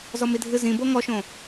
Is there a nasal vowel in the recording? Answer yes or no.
yes